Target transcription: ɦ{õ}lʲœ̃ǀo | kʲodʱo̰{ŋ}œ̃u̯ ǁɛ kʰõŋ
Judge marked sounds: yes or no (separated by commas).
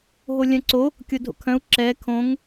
no, no